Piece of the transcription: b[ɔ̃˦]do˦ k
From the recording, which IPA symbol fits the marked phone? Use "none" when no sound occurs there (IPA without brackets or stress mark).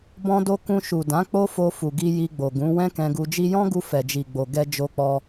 ɔ̃˦